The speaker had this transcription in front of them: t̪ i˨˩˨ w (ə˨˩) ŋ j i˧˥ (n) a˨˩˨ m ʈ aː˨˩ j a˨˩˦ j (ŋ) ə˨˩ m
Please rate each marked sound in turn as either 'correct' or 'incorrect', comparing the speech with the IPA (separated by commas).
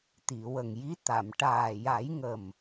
correct, incorrect, correct